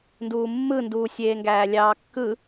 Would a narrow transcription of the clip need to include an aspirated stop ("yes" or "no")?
no